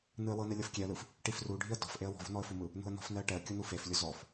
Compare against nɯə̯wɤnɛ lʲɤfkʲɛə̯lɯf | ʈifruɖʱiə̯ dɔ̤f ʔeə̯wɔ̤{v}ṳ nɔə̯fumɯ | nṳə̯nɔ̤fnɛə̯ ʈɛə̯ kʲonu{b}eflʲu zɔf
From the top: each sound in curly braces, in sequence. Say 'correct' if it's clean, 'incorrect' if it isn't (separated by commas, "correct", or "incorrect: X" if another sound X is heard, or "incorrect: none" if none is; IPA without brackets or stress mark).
correct, incorrect: f